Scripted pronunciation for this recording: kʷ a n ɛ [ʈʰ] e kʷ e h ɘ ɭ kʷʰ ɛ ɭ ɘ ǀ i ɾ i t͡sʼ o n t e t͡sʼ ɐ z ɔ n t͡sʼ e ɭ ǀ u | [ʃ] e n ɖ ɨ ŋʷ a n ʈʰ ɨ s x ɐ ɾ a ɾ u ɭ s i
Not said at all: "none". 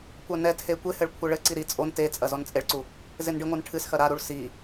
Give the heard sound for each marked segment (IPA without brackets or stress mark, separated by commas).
tʰ, z